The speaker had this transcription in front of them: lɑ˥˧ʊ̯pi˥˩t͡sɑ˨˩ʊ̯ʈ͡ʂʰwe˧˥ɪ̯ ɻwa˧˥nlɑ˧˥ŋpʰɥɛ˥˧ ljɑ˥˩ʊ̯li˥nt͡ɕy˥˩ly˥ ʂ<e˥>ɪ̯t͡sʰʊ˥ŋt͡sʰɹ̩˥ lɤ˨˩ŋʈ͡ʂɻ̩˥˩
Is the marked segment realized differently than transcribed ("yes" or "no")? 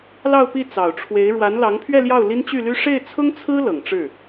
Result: yes